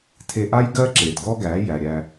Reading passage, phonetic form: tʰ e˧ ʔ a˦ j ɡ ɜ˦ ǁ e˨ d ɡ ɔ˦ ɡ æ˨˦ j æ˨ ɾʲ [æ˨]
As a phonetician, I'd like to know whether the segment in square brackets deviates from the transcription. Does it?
yes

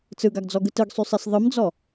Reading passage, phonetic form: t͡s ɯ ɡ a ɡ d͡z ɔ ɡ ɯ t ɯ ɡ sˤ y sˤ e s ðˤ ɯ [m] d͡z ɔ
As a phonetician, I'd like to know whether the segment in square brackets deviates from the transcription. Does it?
no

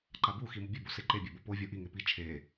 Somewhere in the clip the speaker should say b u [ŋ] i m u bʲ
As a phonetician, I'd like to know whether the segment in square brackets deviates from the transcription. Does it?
yes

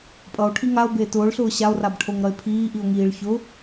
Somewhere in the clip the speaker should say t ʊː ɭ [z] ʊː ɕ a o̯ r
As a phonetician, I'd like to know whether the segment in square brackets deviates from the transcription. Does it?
yes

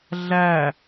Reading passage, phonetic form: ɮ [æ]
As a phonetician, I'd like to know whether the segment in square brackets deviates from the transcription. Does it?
no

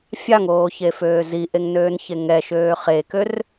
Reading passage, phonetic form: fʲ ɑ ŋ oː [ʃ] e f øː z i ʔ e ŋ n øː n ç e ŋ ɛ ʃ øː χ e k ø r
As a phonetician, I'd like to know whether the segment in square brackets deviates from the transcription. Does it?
yes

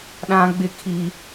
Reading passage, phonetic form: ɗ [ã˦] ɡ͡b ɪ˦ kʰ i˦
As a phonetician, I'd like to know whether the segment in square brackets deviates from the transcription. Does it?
no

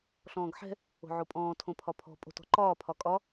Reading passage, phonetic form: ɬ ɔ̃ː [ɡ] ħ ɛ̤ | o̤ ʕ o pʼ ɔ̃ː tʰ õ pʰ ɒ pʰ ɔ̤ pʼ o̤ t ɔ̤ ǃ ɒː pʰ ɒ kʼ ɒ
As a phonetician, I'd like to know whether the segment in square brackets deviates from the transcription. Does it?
no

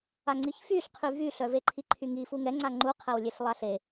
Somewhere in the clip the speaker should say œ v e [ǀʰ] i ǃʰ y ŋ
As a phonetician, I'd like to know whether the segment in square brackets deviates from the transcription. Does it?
yes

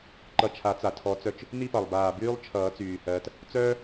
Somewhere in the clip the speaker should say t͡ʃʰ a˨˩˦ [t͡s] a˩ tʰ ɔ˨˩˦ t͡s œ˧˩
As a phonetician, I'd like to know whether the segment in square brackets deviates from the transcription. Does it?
no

